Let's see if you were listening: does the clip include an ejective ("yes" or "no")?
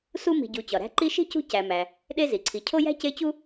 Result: no